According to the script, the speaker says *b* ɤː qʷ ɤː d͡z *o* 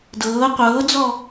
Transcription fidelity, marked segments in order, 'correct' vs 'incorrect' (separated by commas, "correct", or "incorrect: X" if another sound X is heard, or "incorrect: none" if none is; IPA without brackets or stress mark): incorrect: d, incorrect: ɔ